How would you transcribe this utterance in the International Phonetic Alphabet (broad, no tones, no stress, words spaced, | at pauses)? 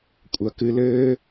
kʷʼɐ kɨ lɘː